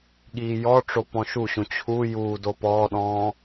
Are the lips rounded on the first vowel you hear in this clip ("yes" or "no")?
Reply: no